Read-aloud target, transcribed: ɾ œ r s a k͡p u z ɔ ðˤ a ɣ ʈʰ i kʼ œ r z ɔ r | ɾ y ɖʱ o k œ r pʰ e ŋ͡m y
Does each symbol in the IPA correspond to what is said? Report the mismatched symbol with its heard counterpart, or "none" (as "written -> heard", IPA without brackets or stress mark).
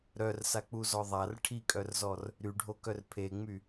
ɣ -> r